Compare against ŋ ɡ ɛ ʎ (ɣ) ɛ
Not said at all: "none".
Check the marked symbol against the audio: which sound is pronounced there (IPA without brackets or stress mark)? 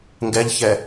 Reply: ç